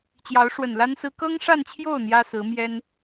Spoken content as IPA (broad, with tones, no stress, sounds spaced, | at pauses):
t͡ɕ j ɑ˧˥ ʊ̯ ʂ w ə˨˩ n l a˥ n s ɹ̩˥ k ɤ˥ ŋ ʂ a˥˧ n t͡ɕʰ j o˥˩ ʊ̯ n̪ j ä˥ s ɹ̩˧˥ m j ɛ˥ n